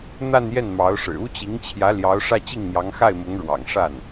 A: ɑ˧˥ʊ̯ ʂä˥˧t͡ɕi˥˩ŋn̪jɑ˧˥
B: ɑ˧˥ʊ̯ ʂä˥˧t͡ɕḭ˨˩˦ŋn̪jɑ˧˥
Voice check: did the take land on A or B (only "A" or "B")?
A